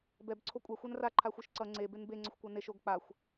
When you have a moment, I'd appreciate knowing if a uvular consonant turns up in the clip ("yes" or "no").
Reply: no